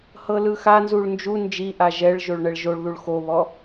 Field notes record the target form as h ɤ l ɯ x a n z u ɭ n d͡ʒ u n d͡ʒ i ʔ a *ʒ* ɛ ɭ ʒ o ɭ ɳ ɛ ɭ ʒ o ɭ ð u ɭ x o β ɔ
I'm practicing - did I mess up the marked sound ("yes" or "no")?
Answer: no